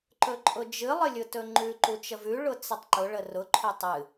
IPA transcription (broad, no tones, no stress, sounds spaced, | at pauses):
ǃ ɵ ǃʼ ʊ d͡ʒ ɨ lˠ ə lʲ ʊ t ɵ ŋ͡ǃ ʉ ǃ u t͡ʃ ə v ʉ ɭ ʊ t͡s ə tˤ ǃ ʊ ɭ ə r ʊ ǃʰ ɵ tˤ ɨ